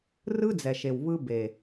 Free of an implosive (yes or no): yes